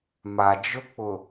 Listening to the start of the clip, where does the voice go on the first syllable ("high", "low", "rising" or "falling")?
low